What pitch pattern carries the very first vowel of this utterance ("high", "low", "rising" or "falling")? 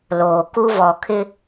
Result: low